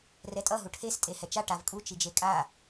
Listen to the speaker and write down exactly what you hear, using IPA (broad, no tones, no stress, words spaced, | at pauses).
rɛtʼʌ ɦuʈʰes tʼehɛt͡ʃa ʈavkʼu t͡ʃid͡ʒekʼa